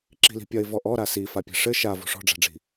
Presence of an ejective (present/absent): absent